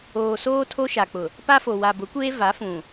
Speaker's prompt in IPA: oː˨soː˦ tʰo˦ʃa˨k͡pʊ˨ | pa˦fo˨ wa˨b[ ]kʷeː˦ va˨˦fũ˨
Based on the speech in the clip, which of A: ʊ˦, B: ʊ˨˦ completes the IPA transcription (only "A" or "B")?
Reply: B